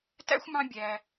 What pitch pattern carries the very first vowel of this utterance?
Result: high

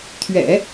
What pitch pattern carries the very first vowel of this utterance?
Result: low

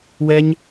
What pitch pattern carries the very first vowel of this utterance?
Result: high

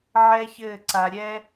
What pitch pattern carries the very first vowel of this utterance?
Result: high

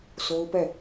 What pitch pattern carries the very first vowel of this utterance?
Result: high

